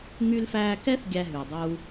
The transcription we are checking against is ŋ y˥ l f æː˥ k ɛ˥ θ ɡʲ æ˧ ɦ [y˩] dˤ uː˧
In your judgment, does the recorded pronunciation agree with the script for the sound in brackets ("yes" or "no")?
yes